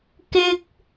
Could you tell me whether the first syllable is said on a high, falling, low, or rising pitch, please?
high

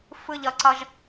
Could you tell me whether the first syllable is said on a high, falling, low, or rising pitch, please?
high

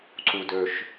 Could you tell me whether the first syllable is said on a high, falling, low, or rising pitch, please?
low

